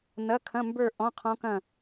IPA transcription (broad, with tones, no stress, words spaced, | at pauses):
nɐ˧˥˧kʰɐ̃˧˥˧mbə˞˥˧ ʔɔ̃˧˥˧qʰɔ̃˦˥kɐ̃˥˧